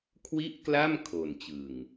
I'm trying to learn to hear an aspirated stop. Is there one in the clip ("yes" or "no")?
yes